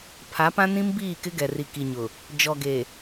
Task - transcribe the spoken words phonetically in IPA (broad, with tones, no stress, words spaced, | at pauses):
pʰa˨˦pã˦ nĩ˦mbiː˦˨kɪ˦ɡɛ˨ ri˨ ki˨ɲʊ˨ | d͡ʒɔ˨ɡe˨